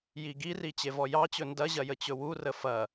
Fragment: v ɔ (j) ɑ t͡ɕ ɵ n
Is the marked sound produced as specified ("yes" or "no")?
yes